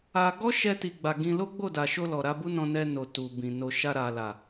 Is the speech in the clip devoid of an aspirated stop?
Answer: yes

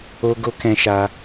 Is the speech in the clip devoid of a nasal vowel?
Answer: no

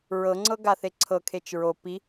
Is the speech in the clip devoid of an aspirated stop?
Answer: no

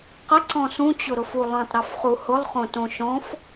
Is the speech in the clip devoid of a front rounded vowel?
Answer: yes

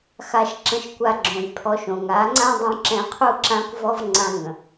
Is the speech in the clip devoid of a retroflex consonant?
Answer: yes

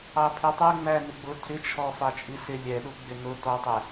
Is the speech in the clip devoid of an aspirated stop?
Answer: no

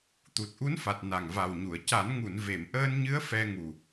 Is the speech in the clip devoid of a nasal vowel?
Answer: yes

